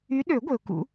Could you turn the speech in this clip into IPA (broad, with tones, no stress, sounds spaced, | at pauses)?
y˨˦ ɗ ø˨˩˦ ɡʷ e˩ ʊ̯ k ṵ˨˩˦